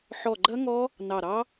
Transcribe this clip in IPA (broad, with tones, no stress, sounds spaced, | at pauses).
ħ ɔ˧˩ ɡ͡ǃ ɐ˦˥ ŋ ɔ˦˥ | n ɑ˧˩ ɾ ɑ˦˥